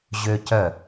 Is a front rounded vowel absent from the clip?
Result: no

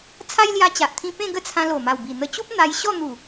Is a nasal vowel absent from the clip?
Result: no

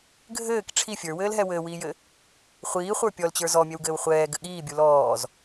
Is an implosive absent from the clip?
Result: no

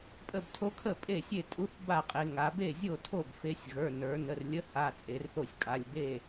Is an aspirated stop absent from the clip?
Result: no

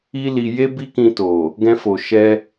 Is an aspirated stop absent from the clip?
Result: yes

